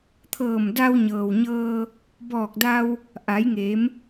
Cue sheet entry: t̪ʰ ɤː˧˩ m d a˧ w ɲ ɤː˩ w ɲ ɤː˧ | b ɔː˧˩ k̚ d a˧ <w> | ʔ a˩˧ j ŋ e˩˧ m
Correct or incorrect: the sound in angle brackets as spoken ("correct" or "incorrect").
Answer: correct